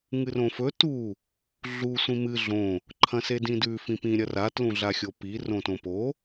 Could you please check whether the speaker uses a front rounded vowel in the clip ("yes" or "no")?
no